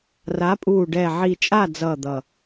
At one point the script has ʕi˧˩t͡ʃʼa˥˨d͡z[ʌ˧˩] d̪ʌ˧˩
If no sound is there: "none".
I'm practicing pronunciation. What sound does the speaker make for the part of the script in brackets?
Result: ʌ˧˩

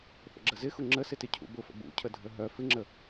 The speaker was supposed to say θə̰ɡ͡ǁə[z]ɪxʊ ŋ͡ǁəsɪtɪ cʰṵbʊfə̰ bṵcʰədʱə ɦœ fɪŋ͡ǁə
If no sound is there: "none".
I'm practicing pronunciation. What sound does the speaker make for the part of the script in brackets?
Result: z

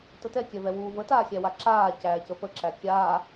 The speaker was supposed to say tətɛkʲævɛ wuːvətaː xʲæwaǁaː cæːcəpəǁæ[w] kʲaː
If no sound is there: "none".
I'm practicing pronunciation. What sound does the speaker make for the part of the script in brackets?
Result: none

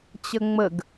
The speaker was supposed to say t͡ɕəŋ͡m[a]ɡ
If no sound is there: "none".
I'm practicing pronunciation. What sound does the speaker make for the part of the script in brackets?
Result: ə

